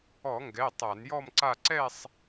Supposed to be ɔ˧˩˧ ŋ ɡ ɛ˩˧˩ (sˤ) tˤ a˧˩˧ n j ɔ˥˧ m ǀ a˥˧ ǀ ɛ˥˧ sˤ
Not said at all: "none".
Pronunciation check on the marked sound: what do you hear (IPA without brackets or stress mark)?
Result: none